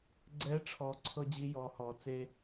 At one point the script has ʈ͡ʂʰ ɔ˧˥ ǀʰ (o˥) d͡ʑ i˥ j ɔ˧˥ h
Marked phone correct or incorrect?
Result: incorrect